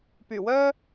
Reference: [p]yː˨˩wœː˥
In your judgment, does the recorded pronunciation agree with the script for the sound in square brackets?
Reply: yes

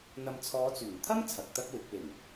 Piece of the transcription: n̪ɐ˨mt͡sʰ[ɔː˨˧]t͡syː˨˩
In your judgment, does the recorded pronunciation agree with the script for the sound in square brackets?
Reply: yes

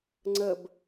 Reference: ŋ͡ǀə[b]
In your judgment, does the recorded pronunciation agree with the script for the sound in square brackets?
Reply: yes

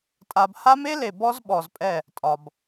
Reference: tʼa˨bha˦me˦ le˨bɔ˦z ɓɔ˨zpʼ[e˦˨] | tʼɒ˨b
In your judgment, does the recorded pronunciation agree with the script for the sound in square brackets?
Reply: no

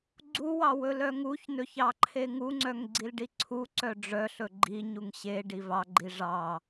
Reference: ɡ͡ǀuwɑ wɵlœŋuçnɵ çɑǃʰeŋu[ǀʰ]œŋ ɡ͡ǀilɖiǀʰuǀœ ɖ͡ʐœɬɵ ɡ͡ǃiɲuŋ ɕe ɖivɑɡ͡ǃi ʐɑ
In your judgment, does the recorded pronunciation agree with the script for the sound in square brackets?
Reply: no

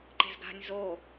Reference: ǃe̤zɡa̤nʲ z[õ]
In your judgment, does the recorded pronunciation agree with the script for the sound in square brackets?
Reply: no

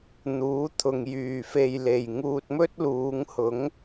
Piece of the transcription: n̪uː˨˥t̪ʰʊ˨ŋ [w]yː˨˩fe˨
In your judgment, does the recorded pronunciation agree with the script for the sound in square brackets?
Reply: no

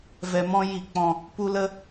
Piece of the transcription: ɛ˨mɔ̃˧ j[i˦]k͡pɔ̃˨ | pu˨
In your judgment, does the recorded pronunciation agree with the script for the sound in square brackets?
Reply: no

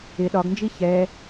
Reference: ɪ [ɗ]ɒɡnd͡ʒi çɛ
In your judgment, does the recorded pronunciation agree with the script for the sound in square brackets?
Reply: yes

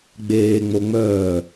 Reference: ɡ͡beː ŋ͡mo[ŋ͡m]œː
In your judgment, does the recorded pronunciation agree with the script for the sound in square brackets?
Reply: yes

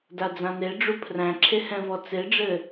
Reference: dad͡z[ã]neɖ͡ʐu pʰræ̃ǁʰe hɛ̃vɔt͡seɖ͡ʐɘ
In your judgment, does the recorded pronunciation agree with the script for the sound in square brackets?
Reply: yes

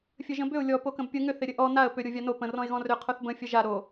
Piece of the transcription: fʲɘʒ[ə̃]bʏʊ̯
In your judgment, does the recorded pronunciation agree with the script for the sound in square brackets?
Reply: yes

